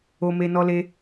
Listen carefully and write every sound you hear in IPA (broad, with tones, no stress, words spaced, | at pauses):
o˧ me˧nɔ˧le˧